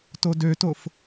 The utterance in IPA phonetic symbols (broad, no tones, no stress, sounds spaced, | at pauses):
t o d ø t o f